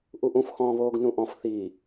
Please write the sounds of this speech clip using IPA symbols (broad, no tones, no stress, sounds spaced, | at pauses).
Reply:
ʔ u ʔ ũ f x ɔ̃ː β oː ɡ n ũ ʔ ɔ̃ f θ i